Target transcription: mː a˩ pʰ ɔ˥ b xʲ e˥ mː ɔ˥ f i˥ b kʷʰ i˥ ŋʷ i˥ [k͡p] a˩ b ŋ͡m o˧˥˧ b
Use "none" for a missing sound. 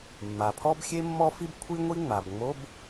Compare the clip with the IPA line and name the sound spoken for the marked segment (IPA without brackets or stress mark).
ŋ͡m